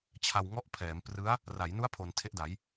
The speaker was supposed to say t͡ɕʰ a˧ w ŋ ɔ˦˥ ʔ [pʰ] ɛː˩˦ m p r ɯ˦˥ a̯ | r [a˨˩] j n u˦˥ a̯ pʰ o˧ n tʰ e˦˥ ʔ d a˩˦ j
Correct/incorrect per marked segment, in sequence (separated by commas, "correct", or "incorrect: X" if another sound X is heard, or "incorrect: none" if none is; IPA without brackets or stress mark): correct, incorrect: a˩˦